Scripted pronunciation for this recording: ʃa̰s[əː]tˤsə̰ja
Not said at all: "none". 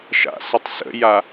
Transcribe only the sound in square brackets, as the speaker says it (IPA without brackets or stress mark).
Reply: ə